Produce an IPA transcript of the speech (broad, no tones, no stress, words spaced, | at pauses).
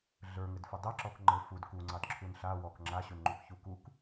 ɮə˞ŋɘdfə dˤɛǁɔk ŋ͡ǃɘ fud kuŋ͡ǀɑdǁʰun ɬa wɔk ŋ͡ǁaɕunŋ͡ǃukçu kuk